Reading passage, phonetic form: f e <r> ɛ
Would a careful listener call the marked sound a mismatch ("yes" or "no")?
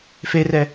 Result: no